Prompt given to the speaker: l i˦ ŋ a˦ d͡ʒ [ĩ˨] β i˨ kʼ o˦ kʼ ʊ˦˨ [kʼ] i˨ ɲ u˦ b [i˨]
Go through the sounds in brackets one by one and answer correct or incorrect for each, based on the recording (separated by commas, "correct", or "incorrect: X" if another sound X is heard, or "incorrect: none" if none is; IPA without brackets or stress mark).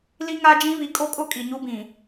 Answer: incorrect: ĩ˦, correct, incorrect: ĩ˨